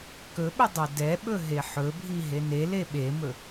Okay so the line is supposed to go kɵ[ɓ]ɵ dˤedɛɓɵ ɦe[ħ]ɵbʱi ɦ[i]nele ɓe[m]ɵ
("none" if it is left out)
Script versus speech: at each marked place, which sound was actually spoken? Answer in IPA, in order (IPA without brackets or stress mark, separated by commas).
ɓ, ħ, e, m